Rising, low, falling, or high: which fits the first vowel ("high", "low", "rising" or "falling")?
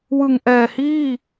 low